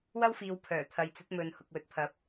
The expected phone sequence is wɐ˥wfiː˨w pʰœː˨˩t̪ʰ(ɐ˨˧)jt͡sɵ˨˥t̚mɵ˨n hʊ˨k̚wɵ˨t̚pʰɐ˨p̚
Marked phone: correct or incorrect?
incorrect